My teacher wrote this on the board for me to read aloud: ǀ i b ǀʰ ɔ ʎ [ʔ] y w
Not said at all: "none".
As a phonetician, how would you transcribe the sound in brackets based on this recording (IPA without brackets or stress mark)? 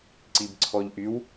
ʔ